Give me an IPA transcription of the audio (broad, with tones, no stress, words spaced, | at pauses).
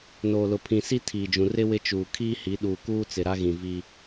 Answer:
noː˨lʊ˨ pʰĩ˨si˦ tʰiː˨d͡ʒũ˨ rɪ˦ wɪ˦t͡ʃuː˨ kʰiː˦hi˨˦ɗuː˨kuː˦ t͡sɪ˨ɾa˦ɣĩ˨ vi˦